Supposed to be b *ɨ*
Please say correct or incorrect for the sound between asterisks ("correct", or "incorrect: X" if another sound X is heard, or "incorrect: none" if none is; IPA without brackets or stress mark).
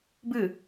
correct